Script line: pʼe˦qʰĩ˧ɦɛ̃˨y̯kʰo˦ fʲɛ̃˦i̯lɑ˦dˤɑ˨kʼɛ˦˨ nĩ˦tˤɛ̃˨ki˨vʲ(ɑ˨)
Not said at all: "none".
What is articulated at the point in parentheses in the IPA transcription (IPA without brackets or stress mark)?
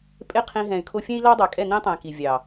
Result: ɑ˨